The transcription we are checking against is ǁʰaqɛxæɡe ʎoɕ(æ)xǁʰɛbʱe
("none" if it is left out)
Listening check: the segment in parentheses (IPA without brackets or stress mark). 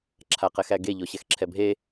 ɛ